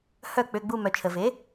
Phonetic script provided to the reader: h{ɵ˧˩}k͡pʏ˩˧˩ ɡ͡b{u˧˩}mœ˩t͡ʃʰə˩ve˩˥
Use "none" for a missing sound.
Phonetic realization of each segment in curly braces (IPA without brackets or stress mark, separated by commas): œ˧˩, u˧˩